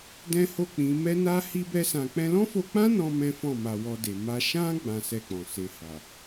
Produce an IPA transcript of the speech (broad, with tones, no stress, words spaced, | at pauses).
dɛ̃˦ho˦˨k͡pĩ˨˦ mɛ˦na˦ hi˦bɛ˦sã˧ k͡pɛ̃˧lɔ̃˦fo˧k͡pã˦ nɔ̃˦mɛ̃˦fɔ̃˦˨ma˧ wɔ˧de˨ ma˧ ʃã˦ ɡ͡bã˦sɛ˦˨k͡pɔ̃˨ se˨ha˨